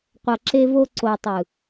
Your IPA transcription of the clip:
qʷ ʌ˨ ǁ e˧ v o˧ ǀ o˨ tˤ ɯ˨

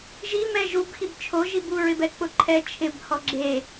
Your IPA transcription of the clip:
ʒ i m ɛ ʒ u b x i b t͡ʃʰ o ʒ i b u ɹ ɪ b ɛ k͡p ʊ ǃʰ ɛ t͡ʃʰ ɪ b h ɔ ɡ͡ǁ e

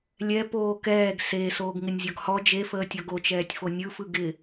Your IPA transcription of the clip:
lʲ ɛ p oː k ɛː ɡ s e s oː ɡ ŋ ɪ nʲ zʲ ɔ ɡ h ɔ d͡ʒ e f əː tʲ ɔ ɡ o t͡ʃ ɛː tʲ f o nʲ ɯ f ɯ ɡ ɪ

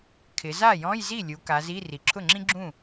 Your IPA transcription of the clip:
kʰ ɪ˩˧ z a˥˩ j ɔ̃˧˥˧ j z i˥˩ lʲ u˩˧ k a˩˧ z i˧˥˧ r i˩ ǁʰ ʊ˥˩ ŋ͡ǁ ĩ˥ ɡ͡ǁ ũ˥˩

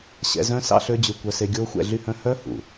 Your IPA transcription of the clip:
ɕ ɛ̰˧ z œ̃˦ s ɑ̰˦ ɬ ø˦ d͡ʑ ʉ˧ kʷ œ˧ s e˧ ɡʲ oː˦ xʷ ɛ̰˧ ɮ y˦ h œ̃˦ h œ˦ h ṵ˨

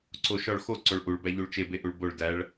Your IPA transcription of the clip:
ǀ o ʃ ɒ ɭ x o ǀ o ɭ ʔ u ɭ b æ ʎ u ɭ t͡ʃ e b e ʔ u ɭ b o ɭ d æ ɭ

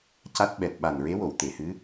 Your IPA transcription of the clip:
c a˦˥ t̚ ɓ ɛ˨˩ t̚ ɓ a˨˩ n ɹ e˧˥ w o˨˩˨ w t̪ e˨˩˨ h ɨ˧˥

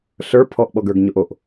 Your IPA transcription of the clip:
ɬ ə˞ pʰ ɔ ʔ ɓ ɔ ɡ ə˞ ɡ ɲ o ʔ o ʔ

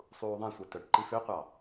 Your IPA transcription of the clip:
sˤ uː ðˤ ẽ sʷ ɛ t œ ʈ ǃ i f ø qʷ ɑ

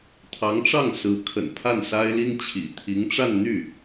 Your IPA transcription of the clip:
t̪ʰ ɑ˧˥ ŋ ʈ͡ʂ ɑ˥˩ ŋ s ɹ̩˧˥ kʰ ə̰˨˩ n pʰ a˥˩ n s a˥ ɪ̯ l i˥ ŋ t͡ɕʰ ḭ˨˩ t̪ʰ i˧˥ ŋ ʈ͡ʂ a˥˧ n n̪ y˥˩

